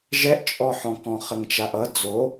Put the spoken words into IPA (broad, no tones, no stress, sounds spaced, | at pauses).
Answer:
ʒ ɛ ʔ t͡ʃʼ ɔ ħ ɔ̃ k ɔ̃ χ ə ŋ t͡ʃ a ʔ ʌ d͡z o